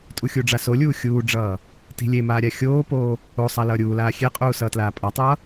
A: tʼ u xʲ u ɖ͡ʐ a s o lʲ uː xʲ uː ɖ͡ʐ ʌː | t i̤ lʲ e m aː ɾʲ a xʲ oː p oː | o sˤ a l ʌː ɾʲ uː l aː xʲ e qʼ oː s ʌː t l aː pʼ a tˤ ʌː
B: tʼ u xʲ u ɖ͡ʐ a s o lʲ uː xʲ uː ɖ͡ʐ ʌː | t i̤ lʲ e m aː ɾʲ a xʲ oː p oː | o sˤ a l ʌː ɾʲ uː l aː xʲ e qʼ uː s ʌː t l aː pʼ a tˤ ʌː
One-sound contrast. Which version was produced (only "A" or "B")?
B